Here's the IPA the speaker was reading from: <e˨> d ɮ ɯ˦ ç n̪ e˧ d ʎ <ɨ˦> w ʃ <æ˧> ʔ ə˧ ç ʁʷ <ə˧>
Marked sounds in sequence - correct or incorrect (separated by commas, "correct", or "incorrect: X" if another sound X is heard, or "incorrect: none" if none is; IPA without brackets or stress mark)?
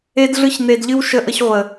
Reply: incorrect: e˦, correct, incorrect: ə˧, incorrect: ə˨